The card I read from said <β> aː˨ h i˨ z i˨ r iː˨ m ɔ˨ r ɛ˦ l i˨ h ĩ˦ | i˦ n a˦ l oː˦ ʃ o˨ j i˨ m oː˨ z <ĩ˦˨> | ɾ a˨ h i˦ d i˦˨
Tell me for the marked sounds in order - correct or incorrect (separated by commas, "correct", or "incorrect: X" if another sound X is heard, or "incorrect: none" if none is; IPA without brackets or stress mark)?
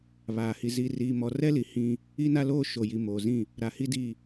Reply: correct, correct